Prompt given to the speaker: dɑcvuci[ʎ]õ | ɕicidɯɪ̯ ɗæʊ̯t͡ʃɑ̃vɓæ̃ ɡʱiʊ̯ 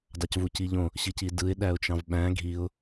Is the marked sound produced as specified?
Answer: yes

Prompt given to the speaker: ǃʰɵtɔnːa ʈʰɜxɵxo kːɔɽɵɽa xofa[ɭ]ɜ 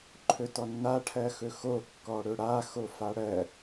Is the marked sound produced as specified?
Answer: no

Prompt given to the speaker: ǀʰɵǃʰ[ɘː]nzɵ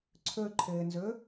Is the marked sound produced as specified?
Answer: yes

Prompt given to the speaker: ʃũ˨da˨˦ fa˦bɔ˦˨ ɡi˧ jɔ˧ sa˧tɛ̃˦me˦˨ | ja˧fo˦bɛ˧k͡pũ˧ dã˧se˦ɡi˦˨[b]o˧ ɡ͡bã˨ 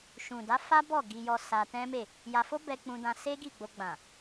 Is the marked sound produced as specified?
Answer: no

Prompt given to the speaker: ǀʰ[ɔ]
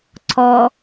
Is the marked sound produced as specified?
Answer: yes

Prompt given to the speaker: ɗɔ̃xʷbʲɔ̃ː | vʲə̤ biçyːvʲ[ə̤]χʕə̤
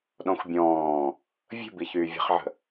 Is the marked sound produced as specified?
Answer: yes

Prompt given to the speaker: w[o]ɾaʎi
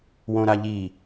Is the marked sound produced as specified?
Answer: no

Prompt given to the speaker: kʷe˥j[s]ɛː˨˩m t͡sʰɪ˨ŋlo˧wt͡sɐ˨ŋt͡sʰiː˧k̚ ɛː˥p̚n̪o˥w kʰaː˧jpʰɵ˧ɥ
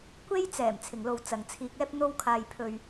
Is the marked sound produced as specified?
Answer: no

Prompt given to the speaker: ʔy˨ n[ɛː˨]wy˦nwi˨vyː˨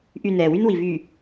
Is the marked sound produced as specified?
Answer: yes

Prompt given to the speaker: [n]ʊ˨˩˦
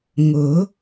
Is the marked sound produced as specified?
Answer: no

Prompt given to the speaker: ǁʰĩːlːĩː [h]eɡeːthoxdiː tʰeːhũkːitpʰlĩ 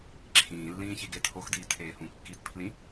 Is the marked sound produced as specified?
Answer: no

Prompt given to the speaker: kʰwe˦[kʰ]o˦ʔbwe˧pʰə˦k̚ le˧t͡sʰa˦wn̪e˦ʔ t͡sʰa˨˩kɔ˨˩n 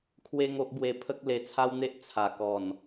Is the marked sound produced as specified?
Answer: no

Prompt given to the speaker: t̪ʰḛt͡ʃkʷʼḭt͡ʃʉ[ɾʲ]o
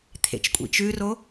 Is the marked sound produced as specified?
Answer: no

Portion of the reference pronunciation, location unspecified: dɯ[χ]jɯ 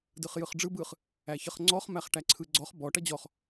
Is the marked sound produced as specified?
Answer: yes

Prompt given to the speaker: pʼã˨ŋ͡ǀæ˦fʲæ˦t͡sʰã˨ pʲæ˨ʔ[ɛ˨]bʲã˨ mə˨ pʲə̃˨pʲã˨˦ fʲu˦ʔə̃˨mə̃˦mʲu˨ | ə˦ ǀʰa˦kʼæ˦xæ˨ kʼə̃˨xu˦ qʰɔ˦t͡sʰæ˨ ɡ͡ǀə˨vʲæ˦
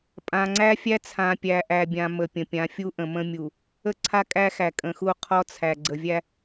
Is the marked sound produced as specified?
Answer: no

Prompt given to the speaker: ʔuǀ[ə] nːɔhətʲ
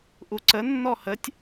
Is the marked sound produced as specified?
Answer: yes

